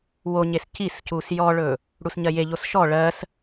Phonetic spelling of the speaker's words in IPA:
w o ɲ e s c i s c u s j ɔ ɭ ɵ | ɽ u s ɲ ɜ j e ʎ o s ʃ ɔ ɭ ɜ s

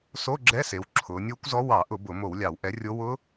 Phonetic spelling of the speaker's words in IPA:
s o˧˥˧ ɡ͡ǁ ɛ˧˥˧ s e˩˧ w ǁʰ ʊː˩˧ nʲ ʊː˦˥ kʷ z ɔ˦˥ w ɑ˧˩˧ ʔ ʊ˧˩˧ b ʊ˧˩˧ m o˧˩˧ w lʲ ɑ˧˩˧ w ʔ ɛ˨˥ rʲ o˦˥ w ʊː˦˥

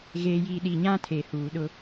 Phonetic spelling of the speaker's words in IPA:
ɣ eː˨ j iː˨ ɗ i˨ ɲ ã˦ tʰ eː˨ h uː˨ ɗ ʊ˦

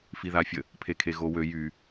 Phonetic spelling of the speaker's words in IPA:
f i ð a fʲ ə | pʰ e kʰ e ɣ o w ø j y

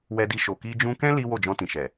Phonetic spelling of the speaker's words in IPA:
w ɛ˧ d i˧ ʃ o˨ k i˧ d͡ʒ ũ˦ k ɛ̃˦ l i˦ w o˦˨ d͡ʒ ɔ̃˧ t ĩ˨ ʃ ɛ˨

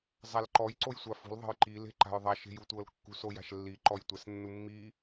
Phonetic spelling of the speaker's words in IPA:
zˤ a l ǃ ɔ j ǀ o j sʷ a f ṳ l ðˤ e̤ j ǃ i l e̤ ǃ a̤ j ðˤ a ʃ e̤ j u tʷ ɤ l kː ṳ s o j a̤ ʃ lː i ǃ ɔ j tʷ ɛ s nː u mː i

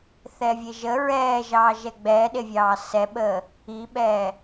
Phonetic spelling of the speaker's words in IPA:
θ ɛː vʲ e ʒ ə ɹ ɛː ʒ ɑː ʒ ɛ ɡ͡b ɛː ɗ e vʲ ɑː s ɛ ɓ əː | i ɓ ɛː

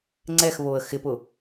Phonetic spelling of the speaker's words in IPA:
ŋ͡ǀ ɛ x β o ə̯ x ɪ p ʊ

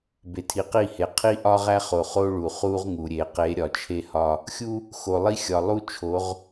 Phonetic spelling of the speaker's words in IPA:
b e˨ tʰ i˨ q i˦˨ h e˨ qʰ i˦ ʔ ɒ˦ ʁ æ˦ χ o˨ χ o˦ ɭ u˨ χ u˦ ʁ ŋ u˨ ɾʲ e˨ q e˨˦ ɾʲ ɒ˨ t͡ʃʰ e˦ h ɒ˦ | xʲ u˦ | x o˨ lˠ i˦ xʲ ɒ˨ lˠ u˦ t͡ʃʰ o˨˦ ʁ

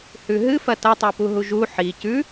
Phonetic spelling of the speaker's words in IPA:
h ʉ ɦ ɨ f ɐ t ɐ tˤ o p u ɦ u ʒ u ħ i c ʉ

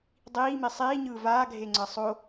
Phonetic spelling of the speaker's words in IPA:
dˤ iː m i sˤ iː ɲ ɯː v aː ɡʱ e ŋ͡ǀ ʌ sˤ o

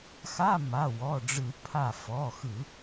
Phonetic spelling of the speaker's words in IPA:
x a˧˥˧ m a˩˧˩ w ɔ˩˧˩ ɖ͡ʐ ɯ˧˩˧ pʰ a˧˩ f ɔ˩˧˩ x ɯ˧˩˧

